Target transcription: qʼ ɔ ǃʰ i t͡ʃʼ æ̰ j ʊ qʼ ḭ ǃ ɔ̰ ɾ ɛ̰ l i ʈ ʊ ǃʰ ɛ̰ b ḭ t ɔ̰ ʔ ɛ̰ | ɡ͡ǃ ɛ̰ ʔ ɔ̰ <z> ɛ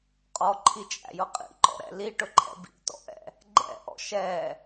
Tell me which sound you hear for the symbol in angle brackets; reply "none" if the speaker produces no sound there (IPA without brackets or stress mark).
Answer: ʃ